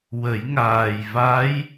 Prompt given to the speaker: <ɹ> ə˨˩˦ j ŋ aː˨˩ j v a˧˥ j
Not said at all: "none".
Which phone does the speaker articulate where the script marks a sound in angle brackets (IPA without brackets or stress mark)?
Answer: w